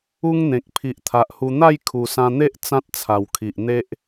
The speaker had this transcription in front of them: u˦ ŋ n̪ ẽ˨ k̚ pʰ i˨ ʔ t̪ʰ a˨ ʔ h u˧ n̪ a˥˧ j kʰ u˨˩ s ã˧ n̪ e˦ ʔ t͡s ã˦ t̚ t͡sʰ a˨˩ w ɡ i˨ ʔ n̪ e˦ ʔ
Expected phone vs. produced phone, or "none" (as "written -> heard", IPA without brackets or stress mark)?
ɡ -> kʰ